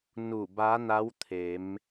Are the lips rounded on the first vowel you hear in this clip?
yes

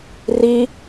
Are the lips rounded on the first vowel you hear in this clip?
no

